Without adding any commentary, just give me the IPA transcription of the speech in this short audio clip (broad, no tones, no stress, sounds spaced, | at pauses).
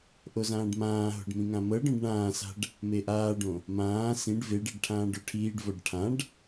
ʔ o z ãː ɖ m ãː ɦ o̤ ɖ m ĩ ŋ ã m ɤ ɖ ɔ̃ ɖ ɳ ãː s a̤ ɖ | m e ʔ aː ɖ õ | m ãː s ĩ ɖ v e ɖ e ɖ ʈʰ ãː ɖ o ʈʰ iː ɖ v ɔ ɖ ʈʰ ã ɖ